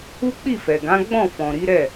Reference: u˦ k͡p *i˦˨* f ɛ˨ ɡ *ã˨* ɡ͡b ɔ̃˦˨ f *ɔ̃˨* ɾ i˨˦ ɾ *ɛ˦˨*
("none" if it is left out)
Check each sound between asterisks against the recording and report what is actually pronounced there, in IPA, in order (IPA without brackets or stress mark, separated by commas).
i˦˨, ã˨˦, ɔ̃˨, ɛ˦˨